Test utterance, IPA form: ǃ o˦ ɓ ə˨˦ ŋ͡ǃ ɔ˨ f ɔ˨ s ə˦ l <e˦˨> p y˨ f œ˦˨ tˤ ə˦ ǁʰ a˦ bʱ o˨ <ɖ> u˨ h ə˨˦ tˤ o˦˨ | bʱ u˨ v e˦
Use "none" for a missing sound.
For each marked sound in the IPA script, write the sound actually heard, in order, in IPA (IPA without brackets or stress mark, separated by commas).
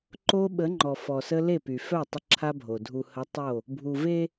e˦˨, dʱ